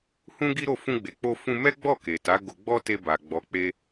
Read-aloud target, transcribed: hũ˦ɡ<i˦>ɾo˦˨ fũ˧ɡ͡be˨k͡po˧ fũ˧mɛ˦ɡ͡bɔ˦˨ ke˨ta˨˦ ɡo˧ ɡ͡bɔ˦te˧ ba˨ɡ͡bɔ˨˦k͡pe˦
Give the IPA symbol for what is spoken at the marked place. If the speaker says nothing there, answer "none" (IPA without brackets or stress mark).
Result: i˦